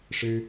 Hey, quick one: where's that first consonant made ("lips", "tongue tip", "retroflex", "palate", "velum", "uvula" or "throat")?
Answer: retroflex